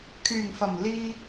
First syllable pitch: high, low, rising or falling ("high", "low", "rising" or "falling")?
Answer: low